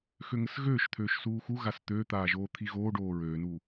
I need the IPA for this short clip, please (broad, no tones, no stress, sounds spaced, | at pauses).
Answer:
x ø ŋ ə s ɣ øː ʃ t̪ʰ øː ʃ s uː x u ɣ a s t̪ ø t̪ aː ʒ oː t̪ʰ i ɣ oː ɖ oː ɹ øː n u